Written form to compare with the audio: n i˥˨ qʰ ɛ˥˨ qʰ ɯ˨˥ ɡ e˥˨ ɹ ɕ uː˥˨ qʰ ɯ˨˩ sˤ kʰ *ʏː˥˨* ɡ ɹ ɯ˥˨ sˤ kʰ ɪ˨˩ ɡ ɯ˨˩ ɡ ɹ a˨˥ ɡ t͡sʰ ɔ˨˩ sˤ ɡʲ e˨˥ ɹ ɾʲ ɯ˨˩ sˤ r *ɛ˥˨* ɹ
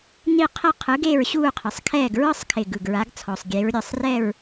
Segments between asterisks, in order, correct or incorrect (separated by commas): incorrect, correct